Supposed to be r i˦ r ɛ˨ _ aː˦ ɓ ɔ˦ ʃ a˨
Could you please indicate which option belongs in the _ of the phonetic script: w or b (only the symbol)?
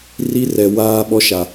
w